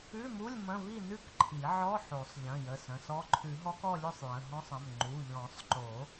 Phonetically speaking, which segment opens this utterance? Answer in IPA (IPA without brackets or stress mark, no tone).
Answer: ʉ